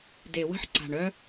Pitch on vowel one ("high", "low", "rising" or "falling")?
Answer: low